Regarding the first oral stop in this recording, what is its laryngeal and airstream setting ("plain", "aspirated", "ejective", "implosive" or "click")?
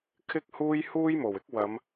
aspirated